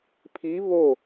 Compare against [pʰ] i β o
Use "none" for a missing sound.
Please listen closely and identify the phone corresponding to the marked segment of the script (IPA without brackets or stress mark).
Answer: pʰ